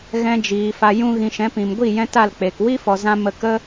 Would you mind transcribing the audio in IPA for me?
ɣ ɛ̃˧ d͡ʒ iː˨ f a˧ j ũ˦ ɣ ĩ˧ ʃ ɛ̃˨˦ p ĩ˨ m ɡʷ i˦˨ j ɛ̃˧ t a˦˨ l k͡p e˨ k w i˦ f ɔ˨ z ã˧ m ə˨ k ə˧

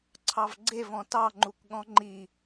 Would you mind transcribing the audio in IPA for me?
ǀʰ ɑ v ɡ͡ǀ e v ɔ̃ t ɑ ŋ͡ǃ u k ɠ ɔ̃ ŋ͡ǃ i

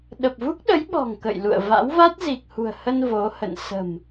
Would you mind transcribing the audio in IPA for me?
ɗ ə˨˩ p̚ v u˦˥ k̚ ɗ ə˨˦ j ɓ ɔ̤˨˩ ŋ k ə̰˧˨ j l ṵ˧˨ ə̯ v a̰˧˥ w v a˦˥ t̚ z i˨˩ k̚ h ṳ˨˩ ə̯ h ə˧ n v o˨˦ h ə̰˧˨ n s ə̤˨˩ m

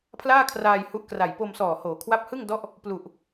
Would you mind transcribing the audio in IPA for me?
pʰ l aː˥˩ kʰ r aː˧ j h u˦˥ ʔ k r a˨˩ j p o˧ m s ɔː˨˩ h oː˩˦ kʰ w a˦˥ p̚ h ɯ˥˩ ŋ d ɔ˦˥ ʔ | p l u˨˩ ʔ

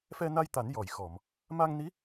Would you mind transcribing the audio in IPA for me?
f ɛ˧ n a˧ j t̪ a˨˩˦ n j ɔ˨˩˨ j x ɔ˨˩˨ m | m a˧ ŋ n i˧˥

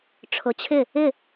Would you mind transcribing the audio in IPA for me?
ʈ͡ʂʰ ʊ˩˥ t͡ɕʰ ɪ˥˩ | ɪ˥˩

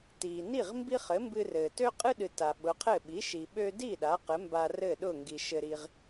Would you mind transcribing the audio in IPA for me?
t iː˩ n i˥˩ ʁ m b i˥ χ ɘ˩˥ m b ɨ˧ r ɘː˩ t ø˥ qʼ ɨ˥ ɗ ɨ˩ t a˩ ɓ ʊ˩˥ qʰ ɘ˥˩ ɓ i˩˥ ʃ i˩ ɓ ø˧ d i˥˩ ɗ a˩˥ q ɘ˩˥ m b a˧ r ɘ˥˩ ɗ ʊː˥˩ ŋ ɡ i˩ ʃ ɘ˧ ɾ i˧ ʁ

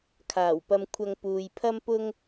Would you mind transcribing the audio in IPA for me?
kʰ aː˨˩ w p ɐ˧ m kʷʰ ɐ˧ ŋ p uː˨ j pʰ ɐ˥ m p ʊ˥ ŋ

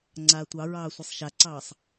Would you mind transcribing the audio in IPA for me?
ŋ͡ǀ aː tʷ ɑ ɹ ɑː sʷ i sˤ ʃ a ǀ ɑː sˤ

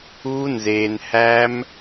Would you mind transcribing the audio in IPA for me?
uː˦ n z eː˧ n h æ˦ m

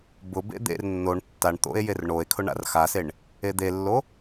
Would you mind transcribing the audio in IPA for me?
b ʊ b ḛ d̪ ḛ r nː o ɳ tː a ɳ t̪ o̰ e̯ j e r ɳ o e̯ kʰ ʊ ɳ a̰ r x a s e ɳ | e d̪ e lː o

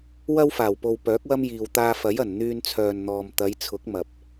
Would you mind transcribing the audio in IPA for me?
w ɐ˥ w f aː˨˩ w p o˨ w p œː˨˥ k̚ w ɐ˥ m j iː˨ w t̪ aː˧ f ɐ˨˥ j ɐ˨˩ n n̪ yː˧ n t͡sʰ œː˨ n n̪ ɔː˨ m t̪ ɐ˨˧ j t͡sʰ ʊ˨˥ k̚ m ɐ˨ p̚

